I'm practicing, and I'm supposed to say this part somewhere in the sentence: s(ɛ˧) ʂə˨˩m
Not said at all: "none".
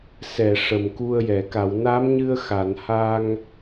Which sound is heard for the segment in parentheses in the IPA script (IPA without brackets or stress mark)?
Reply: ɛ˨˩˨